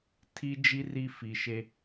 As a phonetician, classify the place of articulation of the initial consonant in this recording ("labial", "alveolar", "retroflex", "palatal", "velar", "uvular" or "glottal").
alveolar